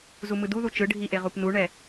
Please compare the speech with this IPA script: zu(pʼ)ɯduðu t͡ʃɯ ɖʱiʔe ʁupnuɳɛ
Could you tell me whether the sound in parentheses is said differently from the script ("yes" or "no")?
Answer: yes